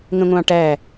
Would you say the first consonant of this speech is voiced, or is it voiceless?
voiced